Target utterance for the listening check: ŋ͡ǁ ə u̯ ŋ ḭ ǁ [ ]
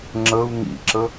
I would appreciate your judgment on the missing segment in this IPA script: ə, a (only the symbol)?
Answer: ə